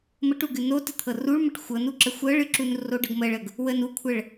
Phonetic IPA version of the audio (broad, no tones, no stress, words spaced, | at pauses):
məʈuɡɨ notɨ t̪ʰɤruɭməʈ xʷɤnuǁə xʷɤɭɨǁunroɖ ɤɡməɭəɡ | wən ukʷʰəɭ